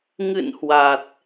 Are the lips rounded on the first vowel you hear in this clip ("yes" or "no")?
no